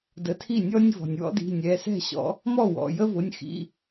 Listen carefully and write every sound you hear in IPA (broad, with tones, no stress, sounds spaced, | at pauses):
d ə˨˦ tʰ i˥˩ nʲ ɔ˦ nʲ v ɔ̤˩ nʲ w ɔ̰˦ d i̤˩˧˩ nʲ ɛ˩˧˩ s ɛ̤˥˩ ɕ ɔ̰˨˦ | m ɔ˥˩ w ɔ̰˩˧˩ j ə˦ v ʊ˩˧˩ nʲ x ḭ˩˧˩